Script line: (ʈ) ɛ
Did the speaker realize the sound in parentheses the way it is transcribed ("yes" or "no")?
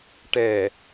yes